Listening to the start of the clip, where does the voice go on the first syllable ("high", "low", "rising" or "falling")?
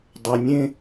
low